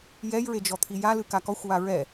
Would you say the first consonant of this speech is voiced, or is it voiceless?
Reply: voiced